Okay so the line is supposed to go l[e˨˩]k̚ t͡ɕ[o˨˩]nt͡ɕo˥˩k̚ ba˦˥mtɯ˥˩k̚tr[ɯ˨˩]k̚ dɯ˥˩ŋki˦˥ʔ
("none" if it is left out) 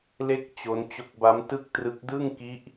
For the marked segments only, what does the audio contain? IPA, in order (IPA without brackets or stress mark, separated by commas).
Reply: e˥˩, o˦˥, ɯ˦˥